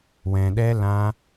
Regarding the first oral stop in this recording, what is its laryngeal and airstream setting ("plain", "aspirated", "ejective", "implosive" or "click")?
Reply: implosive